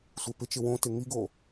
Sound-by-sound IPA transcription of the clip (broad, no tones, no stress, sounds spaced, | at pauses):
sʷ e p ɪ t͡ʃ ɪ w õ t ɪ ŋ i ɡ o